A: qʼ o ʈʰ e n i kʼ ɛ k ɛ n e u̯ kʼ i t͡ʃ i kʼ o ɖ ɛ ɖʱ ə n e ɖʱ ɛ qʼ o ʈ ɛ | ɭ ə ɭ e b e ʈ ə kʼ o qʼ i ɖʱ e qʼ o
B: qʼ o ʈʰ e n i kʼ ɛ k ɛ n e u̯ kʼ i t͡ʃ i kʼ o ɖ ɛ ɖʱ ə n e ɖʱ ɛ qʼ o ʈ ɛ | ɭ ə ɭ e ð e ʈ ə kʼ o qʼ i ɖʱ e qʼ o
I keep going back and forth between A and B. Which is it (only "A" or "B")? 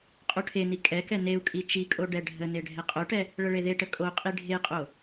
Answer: B